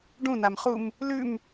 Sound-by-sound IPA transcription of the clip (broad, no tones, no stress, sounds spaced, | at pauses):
ɖ ũ n a m χ u m | l ʉ m